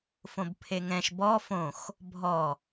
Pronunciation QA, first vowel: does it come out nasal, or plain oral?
nasal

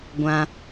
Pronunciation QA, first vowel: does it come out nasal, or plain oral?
nasal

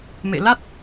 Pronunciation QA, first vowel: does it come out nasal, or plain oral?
oral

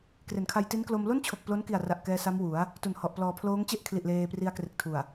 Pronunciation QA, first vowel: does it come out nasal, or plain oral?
oral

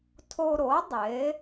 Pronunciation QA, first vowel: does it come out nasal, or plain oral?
oral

